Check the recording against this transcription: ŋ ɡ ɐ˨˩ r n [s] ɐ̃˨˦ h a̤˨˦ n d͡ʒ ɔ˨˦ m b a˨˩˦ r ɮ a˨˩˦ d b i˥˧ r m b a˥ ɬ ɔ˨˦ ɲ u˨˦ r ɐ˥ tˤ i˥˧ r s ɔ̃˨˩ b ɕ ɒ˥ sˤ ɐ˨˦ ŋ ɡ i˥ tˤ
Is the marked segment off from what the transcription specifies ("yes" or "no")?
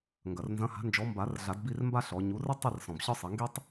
yes